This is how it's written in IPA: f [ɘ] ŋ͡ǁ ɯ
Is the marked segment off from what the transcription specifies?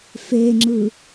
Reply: yes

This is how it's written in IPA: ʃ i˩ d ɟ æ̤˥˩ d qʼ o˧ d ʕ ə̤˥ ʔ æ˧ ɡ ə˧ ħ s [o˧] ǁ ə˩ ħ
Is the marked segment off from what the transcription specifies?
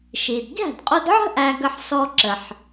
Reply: yes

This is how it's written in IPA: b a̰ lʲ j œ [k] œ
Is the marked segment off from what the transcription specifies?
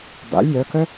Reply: no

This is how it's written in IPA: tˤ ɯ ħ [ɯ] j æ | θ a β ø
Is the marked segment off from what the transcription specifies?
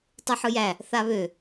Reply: no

